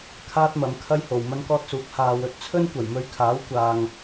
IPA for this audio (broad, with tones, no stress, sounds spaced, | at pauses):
kʰ aː˥ t̚ m ɐ˨˧ m kʰ ɐ˥ j h o˨ w m ɐ˥ n k ɔː˥ t̚ s uː˨˥ k̚ h aː˧ w ɵ˧ t̚ t͡sʰ ɵ˥ n kʷ ɐ˨˩ j m ɵ˧ ɥ kʰ aː˨˥ w kʷ aː˨ ŋ